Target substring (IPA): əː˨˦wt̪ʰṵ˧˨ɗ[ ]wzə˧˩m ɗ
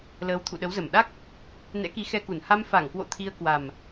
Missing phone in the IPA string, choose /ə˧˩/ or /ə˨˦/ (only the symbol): ə˨˦